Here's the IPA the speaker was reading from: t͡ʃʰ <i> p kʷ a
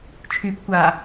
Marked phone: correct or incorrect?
incorrect